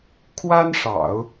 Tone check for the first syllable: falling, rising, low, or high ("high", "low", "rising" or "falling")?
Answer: high